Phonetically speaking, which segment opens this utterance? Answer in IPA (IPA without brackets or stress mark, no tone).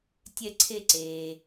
tʲ